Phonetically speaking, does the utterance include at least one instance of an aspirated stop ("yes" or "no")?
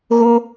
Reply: no